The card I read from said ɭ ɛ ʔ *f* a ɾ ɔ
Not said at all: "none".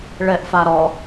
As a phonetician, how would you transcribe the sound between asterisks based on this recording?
f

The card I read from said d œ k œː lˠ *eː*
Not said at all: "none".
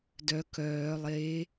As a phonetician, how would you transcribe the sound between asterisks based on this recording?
eː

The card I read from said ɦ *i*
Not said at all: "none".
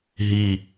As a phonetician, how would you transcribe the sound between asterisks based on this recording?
i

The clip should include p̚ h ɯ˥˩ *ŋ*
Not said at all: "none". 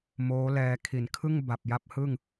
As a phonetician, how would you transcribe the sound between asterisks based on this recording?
ŋ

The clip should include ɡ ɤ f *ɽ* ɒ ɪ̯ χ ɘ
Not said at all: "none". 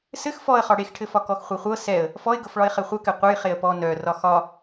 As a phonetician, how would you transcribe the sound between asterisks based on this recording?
ɭ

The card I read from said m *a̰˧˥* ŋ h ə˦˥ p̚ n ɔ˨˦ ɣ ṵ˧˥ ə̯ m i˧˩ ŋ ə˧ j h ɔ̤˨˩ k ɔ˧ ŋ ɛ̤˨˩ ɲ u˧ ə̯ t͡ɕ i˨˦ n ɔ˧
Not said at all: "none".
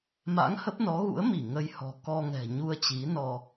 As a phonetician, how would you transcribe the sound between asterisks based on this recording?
a̰˧˥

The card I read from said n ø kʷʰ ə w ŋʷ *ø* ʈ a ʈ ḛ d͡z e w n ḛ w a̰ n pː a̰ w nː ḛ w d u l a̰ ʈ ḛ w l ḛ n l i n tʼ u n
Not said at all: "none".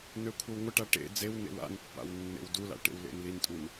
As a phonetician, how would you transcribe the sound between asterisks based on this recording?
ə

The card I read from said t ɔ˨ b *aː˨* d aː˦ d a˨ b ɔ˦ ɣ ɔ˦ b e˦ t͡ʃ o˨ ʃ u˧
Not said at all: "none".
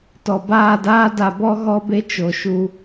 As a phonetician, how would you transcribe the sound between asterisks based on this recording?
aː˦˨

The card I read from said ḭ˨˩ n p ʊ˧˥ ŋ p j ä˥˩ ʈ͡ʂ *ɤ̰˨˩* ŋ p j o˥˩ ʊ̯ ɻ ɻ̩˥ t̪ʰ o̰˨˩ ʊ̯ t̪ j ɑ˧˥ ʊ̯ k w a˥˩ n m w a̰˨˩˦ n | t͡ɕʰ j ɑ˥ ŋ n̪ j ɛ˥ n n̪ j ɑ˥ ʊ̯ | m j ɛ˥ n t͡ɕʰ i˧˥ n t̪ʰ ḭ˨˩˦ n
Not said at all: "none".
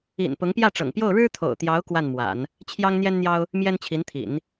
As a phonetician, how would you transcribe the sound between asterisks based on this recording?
ɤ̰˨˩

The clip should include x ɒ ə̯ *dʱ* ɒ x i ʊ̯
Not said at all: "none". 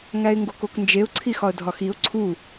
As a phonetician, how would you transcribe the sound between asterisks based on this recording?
dʱ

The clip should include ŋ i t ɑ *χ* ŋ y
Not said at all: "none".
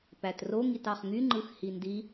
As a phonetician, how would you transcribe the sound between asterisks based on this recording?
χ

